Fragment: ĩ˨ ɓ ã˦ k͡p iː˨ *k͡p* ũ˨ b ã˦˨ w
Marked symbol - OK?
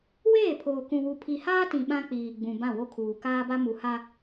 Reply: no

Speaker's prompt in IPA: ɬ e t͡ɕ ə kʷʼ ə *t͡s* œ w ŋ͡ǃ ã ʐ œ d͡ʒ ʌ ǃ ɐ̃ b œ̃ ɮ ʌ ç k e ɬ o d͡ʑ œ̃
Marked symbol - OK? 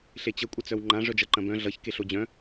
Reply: yes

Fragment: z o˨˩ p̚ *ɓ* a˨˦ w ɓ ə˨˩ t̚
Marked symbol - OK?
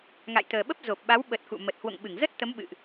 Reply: yes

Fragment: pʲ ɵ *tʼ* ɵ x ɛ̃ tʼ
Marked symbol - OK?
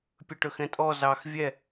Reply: no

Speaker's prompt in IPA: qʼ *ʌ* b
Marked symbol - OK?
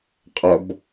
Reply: yes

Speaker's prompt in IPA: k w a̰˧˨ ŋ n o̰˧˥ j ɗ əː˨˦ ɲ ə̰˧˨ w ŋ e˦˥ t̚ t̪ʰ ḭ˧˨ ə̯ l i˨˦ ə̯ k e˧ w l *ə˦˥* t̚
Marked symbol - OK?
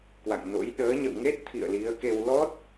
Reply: no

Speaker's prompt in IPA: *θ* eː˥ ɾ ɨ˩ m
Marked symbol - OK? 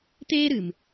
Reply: no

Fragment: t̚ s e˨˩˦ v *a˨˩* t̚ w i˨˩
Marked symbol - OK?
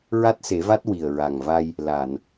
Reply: no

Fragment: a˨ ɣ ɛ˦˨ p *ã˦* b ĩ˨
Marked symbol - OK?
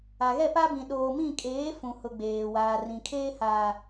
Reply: no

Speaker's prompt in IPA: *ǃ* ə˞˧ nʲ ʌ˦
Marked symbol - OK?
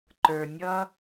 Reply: yes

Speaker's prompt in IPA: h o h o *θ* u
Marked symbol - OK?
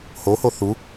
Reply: yes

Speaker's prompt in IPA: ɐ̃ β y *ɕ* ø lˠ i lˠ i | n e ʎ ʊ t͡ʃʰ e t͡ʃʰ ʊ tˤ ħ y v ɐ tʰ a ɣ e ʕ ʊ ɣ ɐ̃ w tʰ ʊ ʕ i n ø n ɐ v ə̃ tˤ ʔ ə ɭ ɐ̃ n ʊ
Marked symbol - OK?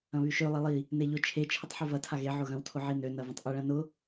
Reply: no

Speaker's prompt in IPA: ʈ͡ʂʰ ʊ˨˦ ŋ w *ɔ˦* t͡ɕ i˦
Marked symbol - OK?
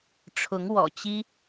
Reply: no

